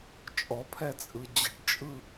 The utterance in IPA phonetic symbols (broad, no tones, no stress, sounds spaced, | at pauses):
t͡ʃʼ ɔ pʰ ɛ t͡sʼ ɯ d͡ʑ ə̤ ʈ t͡ʃʼ ɯ